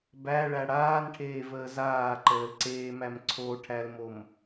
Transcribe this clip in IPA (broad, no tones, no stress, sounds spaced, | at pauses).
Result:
b æ ɭ æ ɽ aː n ʈʰ eː v əː z aː ǃ əː l ǀ eː m æ m ǀʰ o ʈʰ æ l m o m